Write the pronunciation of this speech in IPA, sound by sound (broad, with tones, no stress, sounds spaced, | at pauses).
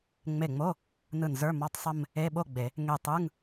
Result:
ŋ͡m e˧˩ ŋ͡m o˧˥˧ | n ɯ˧˩ n z ə˞˧˥˧ m ɔ˧˥˧ tˤ sˤ ə˥˧ m | e˧˥˧ ɓ o˥˧ ɡ͡b e˨˩˦ | ŋ e˧˩ tˤ ɯ˧˥˧ ŋ